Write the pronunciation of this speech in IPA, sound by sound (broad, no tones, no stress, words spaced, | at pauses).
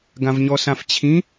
ɡãvɲɔsãft͡ɕʰĩ